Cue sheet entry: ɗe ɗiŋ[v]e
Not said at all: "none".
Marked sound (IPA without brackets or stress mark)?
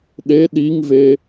v